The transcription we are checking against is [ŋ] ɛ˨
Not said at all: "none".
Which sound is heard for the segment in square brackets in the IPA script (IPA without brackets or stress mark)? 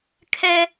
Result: kʰ